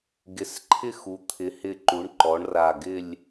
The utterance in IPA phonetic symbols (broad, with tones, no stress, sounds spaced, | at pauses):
ɡ ɪ˩˥ s ǃʰ ɪ˥˨ x u˩˥ t̪ʰ ɪ˩˥ h ɪ˧˩ ǃ u˩˥ ɳ ǃ ɔ˩˥ ɳ r a˧˩ ɡ ɪ˥˨ lʲ